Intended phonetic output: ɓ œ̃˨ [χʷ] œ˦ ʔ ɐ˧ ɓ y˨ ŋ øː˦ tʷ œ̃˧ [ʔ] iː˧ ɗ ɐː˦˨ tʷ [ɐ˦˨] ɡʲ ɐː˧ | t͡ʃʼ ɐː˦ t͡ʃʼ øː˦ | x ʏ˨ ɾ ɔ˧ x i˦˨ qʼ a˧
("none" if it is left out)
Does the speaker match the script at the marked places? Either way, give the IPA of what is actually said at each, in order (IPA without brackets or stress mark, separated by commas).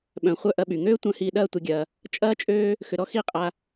χʷ, h, ɐ˧